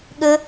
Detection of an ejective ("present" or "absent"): absent